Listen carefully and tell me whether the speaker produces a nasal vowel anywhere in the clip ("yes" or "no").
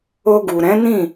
yes